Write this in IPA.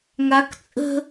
ŋak t͡sʼə̤

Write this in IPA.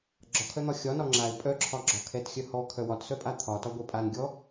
ɡ͡ǁɒkʰœn̪ɒ xʲɒ nɒŋ͡ǁaɪ̯ pʼœǁʰɒɡ͡ǁɒ kʰɛtxʲœhɔ kʰœwɒtsœpʼa t̪ʰɒtɒ ɡʷɛpʼan ɡʲɔ

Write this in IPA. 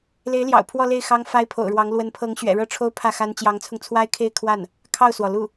le˧˥ɪ̯ljɑ̰˨˩ʊ̯ pʰwɔ˥˧ le˥˩ɪ̯xɑ˥ŋ fa˥ɪ̯pʰo̰˨˩ʊ̯ɻwɑ˧˥ŋ lwə˧˥npʰɤ˧˥ŋ ɕɥɛ̰˨˩ɻɤ˥˩ʈ͡ʂʰo˥ʊ̯ pʰä˥˩xa˥n t͡ɕjɑ˧˥ŋt͡sʰʊ˧ŋt͡sʰwa˥ɪ̯kʰe˥˧ɪ̯ kʰwa˥˩n | kʰɑ˥˩ʊ̯swɔ˩ lu˥˩

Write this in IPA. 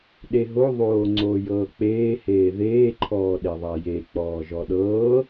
ɗeɦo ðˤoːŋ͡ǀoːjɤːk͡peː heːðeː ǃʰɔːɗeðˤaje k͡pɔːʒɔɗɤː

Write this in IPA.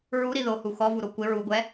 ɹuɾi ðohu xɔvuɾo kʷɪ ɹuɡʷɛ

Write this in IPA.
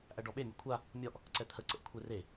ʔæɖɔɓemʲɘ kʷʰa | mʲɔʔ | ǀɛt̪ʰəǀəʔ kʷʰere

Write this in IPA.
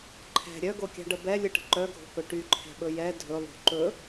ǃʰɛ̤ ɾʲœɡokʲa̤ɖə bɛlʲɯʈə̤ ǃœɡʱo̤kɵ ʈyǃʰɛ̤ɓɵ jɛ dʱɵlˠo̤ ǃɵ

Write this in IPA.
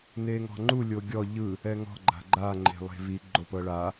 neŋɔ̤ŋ͡ǃu lʲoɡʲɔ ʎɯ | ɛŋɔ̤ ɡ͡ǃa̤ɡ͡ǃa ŋ͡ǃe̤lˠe̤vi ɡ͡ǃopɤɭa

